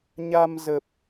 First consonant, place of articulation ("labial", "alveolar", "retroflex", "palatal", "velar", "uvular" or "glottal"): palatal